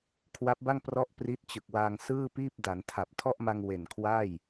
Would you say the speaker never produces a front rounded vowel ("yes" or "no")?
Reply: yes